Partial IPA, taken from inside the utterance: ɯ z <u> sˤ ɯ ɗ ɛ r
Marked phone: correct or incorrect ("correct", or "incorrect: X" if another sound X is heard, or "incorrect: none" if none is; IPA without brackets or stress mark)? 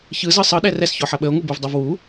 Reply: incorrect: ɯ